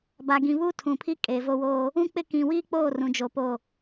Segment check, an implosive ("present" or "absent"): absent